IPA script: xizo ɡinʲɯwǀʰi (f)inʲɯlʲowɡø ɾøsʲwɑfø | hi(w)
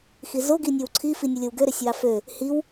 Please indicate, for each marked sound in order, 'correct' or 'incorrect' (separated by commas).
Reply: correct, correct